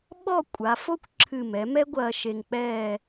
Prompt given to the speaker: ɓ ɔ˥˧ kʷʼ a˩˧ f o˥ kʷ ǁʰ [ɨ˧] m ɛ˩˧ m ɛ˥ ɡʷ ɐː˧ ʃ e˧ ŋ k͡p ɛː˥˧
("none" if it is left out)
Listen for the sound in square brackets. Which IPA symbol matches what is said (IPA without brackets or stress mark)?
ɨ˧˩